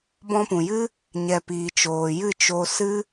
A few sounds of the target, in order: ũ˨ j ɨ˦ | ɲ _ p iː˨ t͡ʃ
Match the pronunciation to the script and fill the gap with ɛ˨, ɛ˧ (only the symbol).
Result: ɛ˨